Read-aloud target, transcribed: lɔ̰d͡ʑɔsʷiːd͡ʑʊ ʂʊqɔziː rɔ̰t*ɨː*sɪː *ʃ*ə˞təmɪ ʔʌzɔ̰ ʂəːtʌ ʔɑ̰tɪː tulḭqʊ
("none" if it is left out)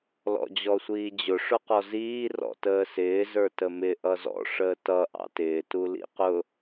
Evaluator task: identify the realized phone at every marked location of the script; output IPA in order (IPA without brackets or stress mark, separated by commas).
əː, z